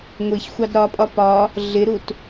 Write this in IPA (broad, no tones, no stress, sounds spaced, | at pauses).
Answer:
ŋʷ i ç xʷ ɑ d ɾ ɒ pʼ ɒ p ɒ | ɮ ɪ ɾ u t